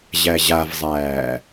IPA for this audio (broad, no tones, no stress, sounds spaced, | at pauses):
ʑ æ ʑ a v zˤ æː